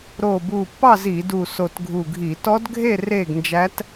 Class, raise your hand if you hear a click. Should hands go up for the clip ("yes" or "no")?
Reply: no